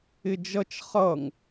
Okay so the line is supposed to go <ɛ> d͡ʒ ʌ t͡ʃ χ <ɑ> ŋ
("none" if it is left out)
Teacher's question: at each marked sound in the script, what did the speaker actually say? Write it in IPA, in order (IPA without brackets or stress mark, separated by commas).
ɪ, ʌ